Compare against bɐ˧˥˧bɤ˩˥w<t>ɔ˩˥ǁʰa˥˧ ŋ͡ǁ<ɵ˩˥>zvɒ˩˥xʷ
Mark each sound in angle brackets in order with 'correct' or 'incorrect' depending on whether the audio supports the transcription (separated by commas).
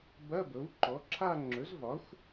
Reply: incorrect, correct